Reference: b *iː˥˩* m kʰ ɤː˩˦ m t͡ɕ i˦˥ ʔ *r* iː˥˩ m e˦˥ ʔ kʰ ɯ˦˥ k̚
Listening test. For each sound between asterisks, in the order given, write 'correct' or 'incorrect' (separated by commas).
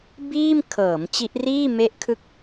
correct, correct